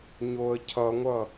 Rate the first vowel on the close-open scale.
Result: mid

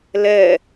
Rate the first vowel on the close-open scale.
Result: mid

